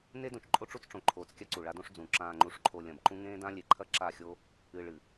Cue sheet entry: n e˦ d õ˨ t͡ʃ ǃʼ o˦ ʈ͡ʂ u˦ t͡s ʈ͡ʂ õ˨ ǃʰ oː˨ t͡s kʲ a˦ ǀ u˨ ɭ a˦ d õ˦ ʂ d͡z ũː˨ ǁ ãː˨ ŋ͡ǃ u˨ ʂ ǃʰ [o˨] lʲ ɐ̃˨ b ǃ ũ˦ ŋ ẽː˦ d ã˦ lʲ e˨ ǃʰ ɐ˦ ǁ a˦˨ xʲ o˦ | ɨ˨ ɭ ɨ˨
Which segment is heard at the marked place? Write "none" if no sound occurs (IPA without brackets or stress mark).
o˨